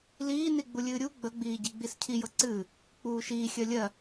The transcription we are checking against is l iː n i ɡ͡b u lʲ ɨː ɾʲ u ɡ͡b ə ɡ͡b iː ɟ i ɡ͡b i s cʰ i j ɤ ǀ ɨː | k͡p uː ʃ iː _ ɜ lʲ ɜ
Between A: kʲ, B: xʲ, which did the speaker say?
B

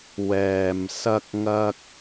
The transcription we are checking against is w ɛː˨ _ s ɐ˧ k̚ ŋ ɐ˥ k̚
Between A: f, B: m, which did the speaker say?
B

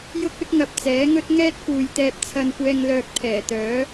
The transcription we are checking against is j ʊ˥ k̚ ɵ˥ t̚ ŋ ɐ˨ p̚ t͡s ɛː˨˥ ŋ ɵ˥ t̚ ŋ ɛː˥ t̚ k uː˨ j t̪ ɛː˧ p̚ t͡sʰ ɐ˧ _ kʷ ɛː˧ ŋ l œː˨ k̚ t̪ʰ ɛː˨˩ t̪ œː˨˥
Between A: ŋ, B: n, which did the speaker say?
B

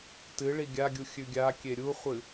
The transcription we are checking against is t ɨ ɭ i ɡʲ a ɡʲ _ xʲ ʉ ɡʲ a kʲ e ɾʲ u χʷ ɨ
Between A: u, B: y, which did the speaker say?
A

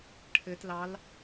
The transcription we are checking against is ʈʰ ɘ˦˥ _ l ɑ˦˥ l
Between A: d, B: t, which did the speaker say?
B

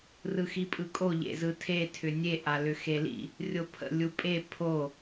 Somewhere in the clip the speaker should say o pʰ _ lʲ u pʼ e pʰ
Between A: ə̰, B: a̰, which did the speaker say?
A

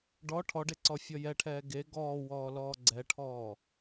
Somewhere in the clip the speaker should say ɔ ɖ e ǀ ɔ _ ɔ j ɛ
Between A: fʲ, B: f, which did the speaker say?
A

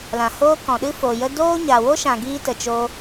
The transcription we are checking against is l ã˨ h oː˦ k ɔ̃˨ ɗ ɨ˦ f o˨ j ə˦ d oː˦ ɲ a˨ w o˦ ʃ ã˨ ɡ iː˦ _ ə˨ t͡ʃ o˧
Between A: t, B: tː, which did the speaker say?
A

